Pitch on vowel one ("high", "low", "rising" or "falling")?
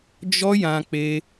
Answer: high